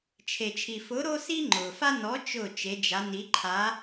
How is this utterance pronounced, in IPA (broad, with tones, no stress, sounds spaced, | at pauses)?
t͡ʃʰ e˩ t͡ʃʰ i˩ f ʊ˨˥ ɾ o˦ s i˦ ŋ͡ǃ ʊ˩ f a˦ n ɔ˨˥ t͡ʃ ʊ˥˩ t͡ʃ e˨˥ d͡ʒ a˨˥ n i˨˥ ǃʰ a˨˥